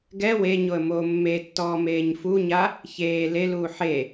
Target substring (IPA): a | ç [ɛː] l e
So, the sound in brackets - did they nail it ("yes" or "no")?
no